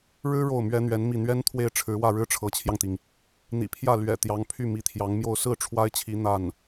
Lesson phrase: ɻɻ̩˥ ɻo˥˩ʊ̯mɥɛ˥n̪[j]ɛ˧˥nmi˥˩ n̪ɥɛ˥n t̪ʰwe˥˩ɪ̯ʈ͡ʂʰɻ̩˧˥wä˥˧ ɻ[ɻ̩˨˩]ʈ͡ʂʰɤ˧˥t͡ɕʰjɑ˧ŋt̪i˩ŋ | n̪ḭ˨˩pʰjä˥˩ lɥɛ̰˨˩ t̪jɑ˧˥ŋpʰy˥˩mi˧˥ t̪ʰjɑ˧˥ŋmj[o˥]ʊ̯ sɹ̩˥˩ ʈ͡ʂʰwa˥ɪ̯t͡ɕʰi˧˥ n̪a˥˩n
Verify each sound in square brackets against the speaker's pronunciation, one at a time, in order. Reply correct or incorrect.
incorrect: ɥ, incorrect: ɻ̩˥˩, incorrect: o˥˧

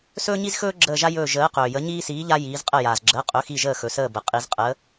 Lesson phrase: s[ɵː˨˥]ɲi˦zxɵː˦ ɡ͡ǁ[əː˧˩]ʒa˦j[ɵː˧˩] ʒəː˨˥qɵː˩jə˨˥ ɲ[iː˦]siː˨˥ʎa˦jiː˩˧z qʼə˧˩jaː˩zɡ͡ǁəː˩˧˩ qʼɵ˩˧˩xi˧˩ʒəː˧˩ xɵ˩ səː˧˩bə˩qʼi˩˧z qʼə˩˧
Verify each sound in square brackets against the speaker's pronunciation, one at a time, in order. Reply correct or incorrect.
incorrect: ɵː˦, correct, correct, correct

